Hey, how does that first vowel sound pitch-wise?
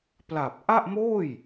low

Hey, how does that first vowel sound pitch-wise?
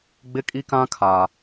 high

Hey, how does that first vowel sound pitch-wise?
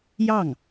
falling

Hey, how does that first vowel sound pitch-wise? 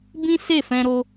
high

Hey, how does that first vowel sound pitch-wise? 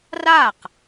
falling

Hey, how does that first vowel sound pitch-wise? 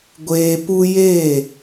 low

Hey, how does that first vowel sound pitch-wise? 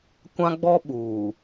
high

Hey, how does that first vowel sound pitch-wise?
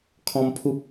high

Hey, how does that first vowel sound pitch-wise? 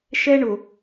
high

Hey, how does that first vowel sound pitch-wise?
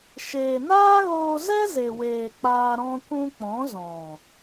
low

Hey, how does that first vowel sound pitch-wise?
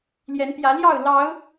rising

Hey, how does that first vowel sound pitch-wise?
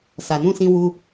low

